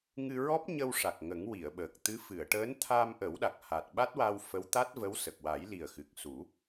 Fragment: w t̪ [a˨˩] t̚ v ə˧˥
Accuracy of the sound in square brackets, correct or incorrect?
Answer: incorrect